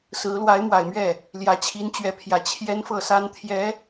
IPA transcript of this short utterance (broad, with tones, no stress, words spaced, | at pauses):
sɹ̩˧˥ lwa˧˥ɪ̯mwa˨˩ɪ̯mɥɛ˥˩ | ljä˨˩t͡ɕʰi˧˥nt͡ɕɥɛ˧˥pʰjä˨˩ t͡ɕʰjɛ˥nfɤ˥˩sa˥n t̪ʰjɛ˧˥